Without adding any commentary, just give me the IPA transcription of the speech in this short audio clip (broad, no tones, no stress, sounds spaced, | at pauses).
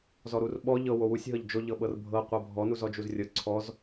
z ɔ ɾ u r ɓ ɔ ʎ ɤ w o w u sʲ ɦ ɤ ʎ d͡ʒ o ʎ ɤ ɓ ɤ r bʱ ɤ qʷ ɤ bʱ ɔ n u z ɔ d͡ʒ u z rʲ ɤ ǀʰ ɔ z